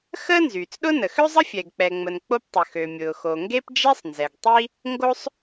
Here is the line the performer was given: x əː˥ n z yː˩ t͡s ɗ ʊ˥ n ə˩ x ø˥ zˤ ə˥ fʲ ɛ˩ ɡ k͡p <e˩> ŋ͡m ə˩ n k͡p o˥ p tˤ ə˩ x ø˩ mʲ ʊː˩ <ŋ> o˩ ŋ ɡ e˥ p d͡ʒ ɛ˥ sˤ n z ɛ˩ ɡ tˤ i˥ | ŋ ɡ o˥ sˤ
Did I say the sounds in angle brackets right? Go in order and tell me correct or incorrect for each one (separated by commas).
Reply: incorrect, incorrect